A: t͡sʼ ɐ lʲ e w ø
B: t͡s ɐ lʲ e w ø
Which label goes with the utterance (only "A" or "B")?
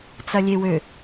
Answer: B